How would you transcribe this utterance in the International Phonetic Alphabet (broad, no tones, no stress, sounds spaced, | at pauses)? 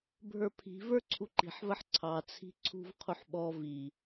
bʱ ə˞ pʰ i̤ v ə˞ ǀʰ u ǃ i̤ ħ v ə ħ ǀʰ ɑ t͡sʰ i̤ ǀʰ ṳ v qʰ u ħ ɓ ɔ v i